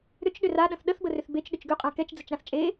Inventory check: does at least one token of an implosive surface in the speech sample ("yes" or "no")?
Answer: yes